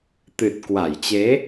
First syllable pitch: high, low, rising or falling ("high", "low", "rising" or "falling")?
low